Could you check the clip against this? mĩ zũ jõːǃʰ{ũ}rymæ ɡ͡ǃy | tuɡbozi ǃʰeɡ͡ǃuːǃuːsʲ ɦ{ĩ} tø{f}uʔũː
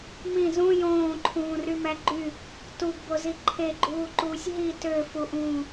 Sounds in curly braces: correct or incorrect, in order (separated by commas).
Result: incorrect, incorrect, correct